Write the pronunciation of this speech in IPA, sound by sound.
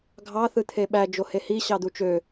ɡʱ ɑ θ ɯ t̪ʰ e ɓ æ d͡ʒ o h e h i ɕ ɑ d̪ u t͡ʃ ø

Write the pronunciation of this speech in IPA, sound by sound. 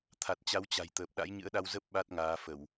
t̪ʰ a˨˩ t̚ t͡ɕ a˨˦ w t͡ɕ a̤˨˩ j t̪ əː˨˩ p̚ ɗ a̰˧˥ j ɲ ɨ̰˧˥ ə̯ ɗ a˧ w z ə˦˥ p̚ ɓ a˦˥ t̚ ŋ aː˨˦ f ə˧˩˨ w

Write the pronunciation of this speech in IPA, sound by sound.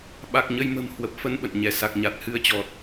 ɓ a˨˩ k̚ ɲ ə˧ j m ə̤˨˩ m h w ə˨˩ p̚ f ə˧ n ɓ ə̰˧˨ n ɲ ɛ˧˩ s a˨˩ k̚ ɲ a˨˩ t̚ h ɨ˧ ə̯ t͡ɕ ɔ˨˩ t̚

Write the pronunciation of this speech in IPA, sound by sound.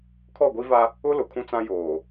kʰ ɔ˦˨ ɡʷ i˦ v a˦ | ʊ˦ l ʊ˨ kʰ ũ˦ t͡s ã˦ j oː˨

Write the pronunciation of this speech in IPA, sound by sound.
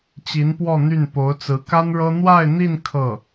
t͡ɕ i˧˥ n p w ɔ˥˧ n̪ y˥˩ n p o˧˥ ʊ̯ t͡s ɹ̩˧˥ k a˥ n ɻ ɤ˥ n̪ w a˥˧ ɪ̯ n̪ i˥˧ n kʰ ɤ˥˩

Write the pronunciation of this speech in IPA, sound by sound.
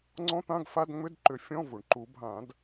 ŋ͡ǀ ɔ̃˧˥˧ t̪ ã˧˥˧ ɡ f a˧˥˧ d ŋ͡m ʏ˧˥˧ d ǃ ʏ˨˩˦ fʲ ɔ̃˧˥˧ v u˩ ɳ ǃ u˨˩˦ bʱ ã˨˩˦ d

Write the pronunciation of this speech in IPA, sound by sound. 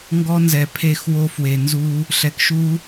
ŋ ɡ ɔ˦ n z ɛ˨ pʰ e˦˨ x w o˦ f w e˨ n z u˦ | ɬ ɛ˨ k ʃ u˦

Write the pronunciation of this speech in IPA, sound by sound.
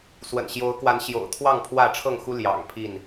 s w ə̰˨˩ n ɕ j o˨˦ ʊ̯ k w a˨˦ n ɕ j o̰˨˩ ʊ̯ t̪ʰ w ɑ˥˨ ŋ pʰ w ä˥˨ ʈ͡ʂʰ ɤ˥˨ ŋ x u˦ l j ɑ̰˨˩ ŋ pʰ i˥˨ n

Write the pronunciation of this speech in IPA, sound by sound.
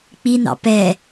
k͡p i n ɑ̰ p ɛ

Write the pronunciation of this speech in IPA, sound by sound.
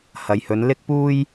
h ɐ˨ j h ɵ˨˧ n l ɪ˥ k̚ p uː˥ j

